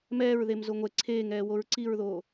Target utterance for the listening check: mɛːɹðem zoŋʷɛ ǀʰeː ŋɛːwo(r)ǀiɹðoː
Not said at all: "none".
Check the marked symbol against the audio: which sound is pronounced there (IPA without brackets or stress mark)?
ɹ